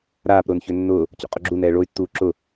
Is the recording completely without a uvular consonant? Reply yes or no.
no